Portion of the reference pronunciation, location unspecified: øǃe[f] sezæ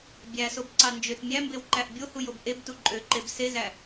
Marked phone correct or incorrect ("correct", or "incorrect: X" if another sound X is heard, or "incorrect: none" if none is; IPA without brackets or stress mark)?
incorrect: b